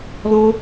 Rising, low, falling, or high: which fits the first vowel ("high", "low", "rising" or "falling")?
high